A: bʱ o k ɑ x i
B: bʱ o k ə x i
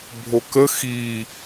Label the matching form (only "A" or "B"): B